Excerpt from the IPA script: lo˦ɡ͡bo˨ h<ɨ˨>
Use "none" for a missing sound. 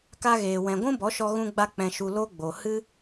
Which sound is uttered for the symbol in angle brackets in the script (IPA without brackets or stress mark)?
ɨ˦